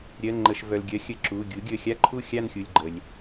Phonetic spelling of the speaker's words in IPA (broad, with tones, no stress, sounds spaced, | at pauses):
ɾʲ ɜ˩˧˩ ŋ͡ǃ ə˩˧˩ ʃ v œ˩ l ɡʲ ɜ˩˥ xʲ ə˩˧˩ ǁ u˩˧˩ ɡʲ u˩˥ ɡʲ ə˩˧˩ xʲ a˥˨ ǃʰ u˥˨ xʲ a˥˨ n xʲ u˩˧˩ lʲ ɡ͡ǃ ə˩ lʲ